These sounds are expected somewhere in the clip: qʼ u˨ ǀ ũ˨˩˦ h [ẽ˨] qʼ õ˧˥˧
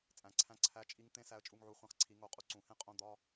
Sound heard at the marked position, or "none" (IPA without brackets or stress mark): ẽ˦˥